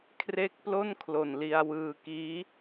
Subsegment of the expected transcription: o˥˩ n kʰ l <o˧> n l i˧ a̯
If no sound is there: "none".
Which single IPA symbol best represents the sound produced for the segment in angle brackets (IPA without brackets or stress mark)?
o˨˩